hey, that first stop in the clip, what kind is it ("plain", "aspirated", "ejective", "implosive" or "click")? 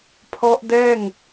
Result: aspirated